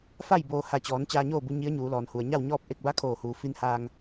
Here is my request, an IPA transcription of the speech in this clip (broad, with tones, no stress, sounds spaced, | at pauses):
f a˥˨ j b oː˧ h a˧˩ t͡ɕ ɔː˩˧ n t͡ɕ aː˧ ɲ oː˥˨ b u˧ ɲ i˧˥ ə̯ ɲ uː˩˧ l ɔː˩ n h u˩ ə̯ ɲ a˥˨ w ɲ ɔː˥˨ p̚ ʔ e˥˨ k̚ b a˧˥ kʰ oː˧˩ h uː˩ f i˧ n h aː˧ ŋ